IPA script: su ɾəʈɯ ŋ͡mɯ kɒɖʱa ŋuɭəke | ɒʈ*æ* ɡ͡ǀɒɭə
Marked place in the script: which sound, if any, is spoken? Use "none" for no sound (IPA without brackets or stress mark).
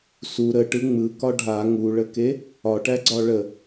æ